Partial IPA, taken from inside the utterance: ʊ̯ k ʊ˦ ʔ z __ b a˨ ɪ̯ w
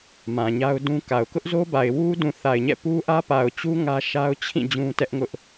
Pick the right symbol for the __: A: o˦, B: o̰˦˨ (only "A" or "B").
A